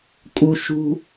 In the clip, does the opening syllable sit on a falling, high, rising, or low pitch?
high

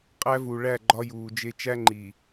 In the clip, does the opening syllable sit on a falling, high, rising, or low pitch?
high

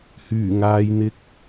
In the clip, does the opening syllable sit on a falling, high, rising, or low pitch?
low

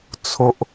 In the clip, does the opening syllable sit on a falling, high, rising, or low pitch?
high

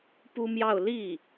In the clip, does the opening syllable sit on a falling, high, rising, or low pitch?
high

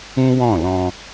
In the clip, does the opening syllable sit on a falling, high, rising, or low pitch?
high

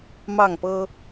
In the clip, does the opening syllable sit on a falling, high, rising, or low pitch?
falling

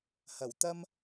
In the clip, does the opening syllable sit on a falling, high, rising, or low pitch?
low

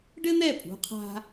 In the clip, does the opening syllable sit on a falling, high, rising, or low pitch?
high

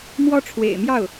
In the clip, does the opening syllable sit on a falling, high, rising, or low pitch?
high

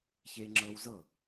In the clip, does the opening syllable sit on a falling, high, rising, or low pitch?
high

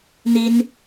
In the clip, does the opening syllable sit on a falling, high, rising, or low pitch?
high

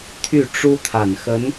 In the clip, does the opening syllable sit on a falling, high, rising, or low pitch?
falling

